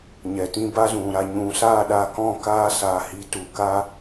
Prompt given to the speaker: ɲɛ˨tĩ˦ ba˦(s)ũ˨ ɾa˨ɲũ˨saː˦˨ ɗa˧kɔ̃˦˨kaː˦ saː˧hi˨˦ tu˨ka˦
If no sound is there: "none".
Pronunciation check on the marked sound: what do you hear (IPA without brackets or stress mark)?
z